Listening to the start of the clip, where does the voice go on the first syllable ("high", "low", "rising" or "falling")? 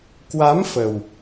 rising